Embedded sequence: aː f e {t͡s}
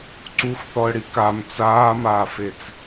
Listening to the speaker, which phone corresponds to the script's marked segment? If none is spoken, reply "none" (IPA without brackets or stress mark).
t͡s